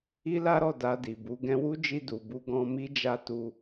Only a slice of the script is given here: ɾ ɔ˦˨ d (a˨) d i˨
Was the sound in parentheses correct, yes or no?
no